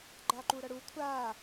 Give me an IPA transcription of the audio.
ɡ͡ǃ a ǃ u ɾ ʌ ɽ u kʷʰ a

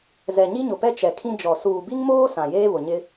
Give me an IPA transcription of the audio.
z ɛ˨ ɲ i˦ ɲ ʊ˨ p ɛ˦ t͡ʃ ɛ˨ kʰ ĩ˦ d͡ʒ ɔ˨ s uː˨ b i˦ ŋ m oː˦ s ã˨ j eː˦ β ʊ˨ ɲ ɪ˦

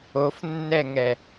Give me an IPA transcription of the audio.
o f nː ɛ ŋ ɛ

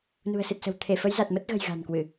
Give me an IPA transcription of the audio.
n ṳ˨˩ ə̯ s ɨ˨˩ t̚ s ə̤˨˩ w t̪ʰ e˧˩ f ə˨˦ j z a˨˩ t̚ m ə˦˥ t̚ ɣ ə̤˨˩ j ɣ a̤˨˩ n k w ɨ˧˩˨

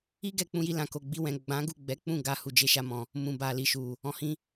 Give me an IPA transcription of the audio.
i˦ ɡ ɛ˦˨ k͡p ũ˧ j i˧ l ã˨ k o˨ ɡ͡b i˧ w ɛ̃˨ ɡ͡b ã˨˦ ɡ u˦˨ ɡ͡b ɛ˨˦ k͡p ũ˦˨ ɡ a˨ h u˨ d͡ʒ e˨ ʃ a˧ m ɔ̃˨ | m ũ˨ b a˨ l i˨ ʃ u˨ | ɔ̃˨ h ĩ˧

